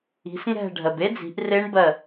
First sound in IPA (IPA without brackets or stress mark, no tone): i̤